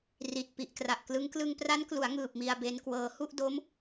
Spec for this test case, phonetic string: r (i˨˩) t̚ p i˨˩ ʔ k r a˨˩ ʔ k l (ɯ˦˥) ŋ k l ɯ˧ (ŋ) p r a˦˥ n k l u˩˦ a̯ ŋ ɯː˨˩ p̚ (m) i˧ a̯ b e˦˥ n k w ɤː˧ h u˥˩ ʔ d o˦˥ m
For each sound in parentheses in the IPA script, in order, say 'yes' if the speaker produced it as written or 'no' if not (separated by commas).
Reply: yes, yes, yes, yes